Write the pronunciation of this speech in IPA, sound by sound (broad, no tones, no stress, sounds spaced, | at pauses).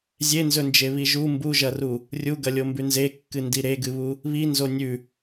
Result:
zʲ e n z ɵ n d͡ʒ e β i ʒ u m b u ʒ ɐ r u | rʲ u ɡ ɐ lʲ o m b ʉ n z e kː ɨ n d i ɾ e ɡ ɨ β u | β i n z o nʲ ʉ